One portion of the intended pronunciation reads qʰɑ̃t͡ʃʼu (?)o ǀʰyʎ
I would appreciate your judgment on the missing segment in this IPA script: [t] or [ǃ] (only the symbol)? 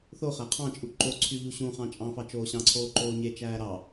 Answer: ǃ